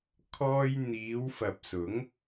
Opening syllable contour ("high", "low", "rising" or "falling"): high